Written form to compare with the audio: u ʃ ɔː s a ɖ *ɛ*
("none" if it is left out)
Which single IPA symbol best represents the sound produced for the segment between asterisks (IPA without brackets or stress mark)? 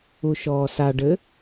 ɘ